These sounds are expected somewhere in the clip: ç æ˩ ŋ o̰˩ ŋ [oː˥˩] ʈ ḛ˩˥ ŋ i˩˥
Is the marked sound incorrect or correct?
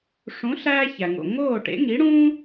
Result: correct